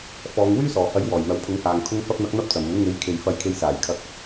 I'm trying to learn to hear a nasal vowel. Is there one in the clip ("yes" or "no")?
no